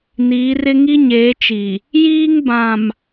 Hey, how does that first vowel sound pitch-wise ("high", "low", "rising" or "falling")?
rising